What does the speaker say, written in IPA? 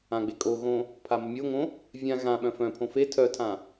ã ɡ͡b e kʼ o ɣ õ | pʰ a m ə mʲ o ŋ õ | vʲ ã ɣ ã ɓ œ̃ f œ̃ pʰ õ f e tʰ œ tʰ ã

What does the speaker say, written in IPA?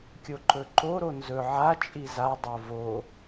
kʲ o ǃ ɵ ǃ o ɾ o n z ɵ ʕ a t͡ʃʼ i z a dˤ o v o

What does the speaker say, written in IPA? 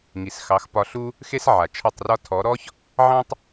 ŋ i˨ s x ɑ˨˦ x p ɒ˧ ɬ u˦ | x e˦ s ʕ a˨ t͡ʃʰ ɒ˦˨ tˤ r ɒ˦ tʰ ɔ˨˦ ɾ ɔ˦ ç | ʕ ɑ̃˦ tˤ

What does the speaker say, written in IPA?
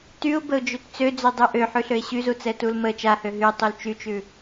t y ʊ̯ b ə ʊ̯ d͡ʒ ø t t͡s ø d͡z ø dˤ ʉ ʔ ø ħ ʉ ɬ ø ɪ̯ ɕ y z u t͡s ɛ t u l m ə t͡ʃ a h ø ɦ y tˤ u l t͡ʃ y t͡ʃ ʉ

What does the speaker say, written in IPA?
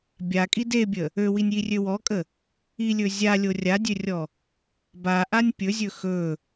bʲ a kʼ i d e bʲ ə | ø w i nʲ j i rʲ ø w ɔ kʼ ə | i lʲ ɵ zʲ a lʲ o rʲ a dʲ ø rʲ ɔ | b a ʔ a nʲ pʲ ɵ zʲ ɵ x ɵ

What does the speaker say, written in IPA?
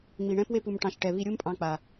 ŋ͡m i˨ ɳ ɛ̃˦ p w e˦ p u˨ m ʈ ɑ̃˨ ʃ ʈ ɛ˨ β i˧ ɾʲ u˦ m pʼ ɑ̃˧ k͡p a˨

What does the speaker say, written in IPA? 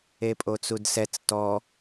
e pʼ o t͡s u d s ɛ t͡s t ɔ

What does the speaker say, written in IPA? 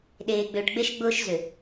ɗ eː˨ ɡ͡b ʏː˨ ʈ ɡ͡b e˦ ʃ ɡ͡b ʊː˦ ʃ z ʏ˨

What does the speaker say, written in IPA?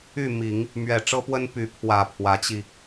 y˥˩ m i˨˩˦ ŋ | m ɥ ɛ˨˩ ʈ͡ʂ ɤ˥ p w ə˥ n p y˧˥ pʰ w ä˨˩ pʰ w ä˧˥ t͡ɕ i˧

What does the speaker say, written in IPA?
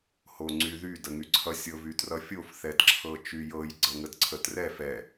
h o ŋ͡ǀ y ð y d ə ŋ y ǀʰ ʌ sʲ ɤ v y t r ʌ fʲ o f θ ɛ d ǁʰ ɤ t͡ʃ y j ɤ j ɡ͡ǀ ɤ ŋ ə d ǀʰ ə t r ɛ f ɛ

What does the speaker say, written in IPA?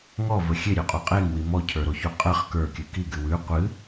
ŋ ɔ v ə xʲ e ɾʲ ʉ qʼ o qʼ e ŋ w i m ɔ cʰ ə˞ ɾ o ç u qʼ ə χ k ə˞ kʲ ɨ k i ɡ ɨ w ʉ qʷ ɨ

